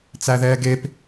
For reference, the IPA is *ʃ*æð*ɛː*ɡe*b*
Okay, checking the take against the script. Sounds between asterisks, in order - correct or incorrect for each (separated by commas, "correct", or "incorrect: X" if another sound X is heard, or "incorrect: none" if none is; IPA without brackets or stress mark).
incorrect: t͡s, correct, incorrect: p